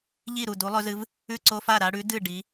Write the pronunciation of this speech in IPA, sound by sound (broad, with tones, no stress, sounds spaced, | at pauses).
ʎ i˥˩ ɾ u˥˩ d u˨˥ lˠ ɵ˨˥ z ɨ˨˥ v | ʉ˥˩ ǀ o˦ f a˥˩ ɾ a˦ ɽ ʉ˨˥ d ɨ˥˩ ɖ i˨˥